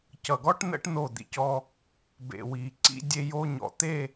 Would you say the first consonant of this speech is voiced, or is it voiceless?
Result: voiceless